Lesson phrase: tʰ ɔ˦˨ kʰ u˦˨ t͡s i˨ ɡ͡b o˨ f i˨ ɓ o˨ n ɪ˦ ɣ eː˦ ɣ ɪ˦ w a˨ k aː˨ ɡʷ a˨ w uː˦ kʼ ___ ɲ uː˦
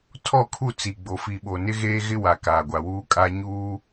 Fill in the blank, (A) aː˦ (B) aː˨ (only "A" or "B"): A